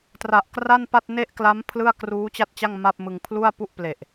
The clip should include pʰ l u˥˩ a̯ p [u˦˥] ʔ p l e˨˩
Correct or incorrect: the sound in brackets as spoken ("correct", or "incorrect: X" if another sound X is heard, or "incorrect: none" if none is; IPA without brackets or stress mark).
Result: incorrect: u˥˩